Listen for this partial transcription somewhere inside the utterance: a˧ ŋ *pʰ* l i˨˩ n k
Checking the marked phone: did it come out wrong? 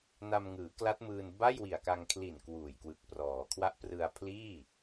yes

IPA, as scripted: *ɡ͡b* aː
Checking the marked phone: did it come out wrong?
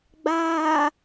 no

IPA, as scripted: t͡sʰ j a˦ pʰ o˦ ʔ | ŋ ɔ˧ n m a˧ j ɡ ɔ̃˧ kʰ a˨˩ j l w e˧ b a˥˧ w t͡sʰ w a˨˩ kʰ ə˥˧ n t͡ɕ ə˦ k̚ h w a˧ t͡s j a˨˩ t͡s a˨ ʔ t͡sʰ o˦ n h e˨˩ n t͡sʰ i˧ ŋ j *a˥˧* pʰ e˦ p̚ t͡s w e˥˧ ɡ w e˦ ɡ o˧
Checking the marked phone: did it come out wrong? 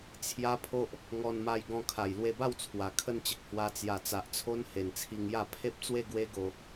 no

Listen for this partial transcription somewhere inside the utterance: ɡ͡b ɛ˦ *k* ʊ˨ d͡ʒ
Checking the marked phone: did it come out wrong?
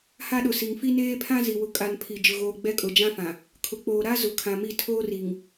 yes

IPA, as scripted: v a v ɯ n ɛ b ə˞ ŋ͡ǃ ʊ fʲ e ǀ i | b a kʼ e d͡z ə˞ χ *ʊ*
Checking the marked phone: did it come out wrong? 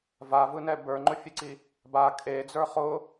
no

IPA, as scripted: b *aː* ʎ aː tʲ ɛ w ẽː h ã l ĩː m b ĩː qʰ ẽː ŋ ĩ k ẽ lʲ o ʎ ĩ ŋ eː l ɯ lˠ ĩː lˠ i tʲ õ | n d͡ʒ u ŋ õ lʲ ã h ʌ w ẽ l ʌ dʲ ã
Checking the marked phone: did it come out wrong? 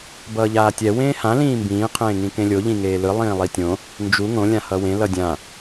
yes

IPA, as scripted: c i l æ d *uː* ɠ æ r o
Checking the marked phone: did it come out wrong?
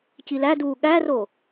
no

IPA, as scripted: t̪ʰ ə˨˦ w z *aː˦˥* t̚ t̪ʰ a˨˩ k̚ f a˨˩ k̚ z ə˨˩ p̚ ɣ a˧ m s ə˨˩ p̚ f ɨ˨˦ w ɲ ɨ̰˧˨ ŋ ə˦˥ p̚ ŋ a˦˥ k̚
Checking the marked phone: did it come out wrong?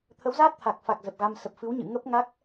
no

